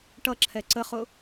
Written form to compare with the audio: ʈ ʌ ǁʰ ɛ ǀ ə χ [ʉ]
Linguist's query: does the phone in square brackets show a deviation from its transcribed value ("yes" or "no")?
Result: yes